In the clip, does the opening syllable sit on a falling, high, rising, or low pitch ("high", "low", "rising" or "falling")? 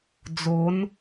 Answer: rising